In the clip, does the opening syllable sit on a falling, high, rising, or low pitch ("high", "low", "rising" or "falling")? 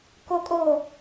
high